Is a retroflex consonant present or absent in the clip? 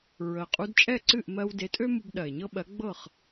absent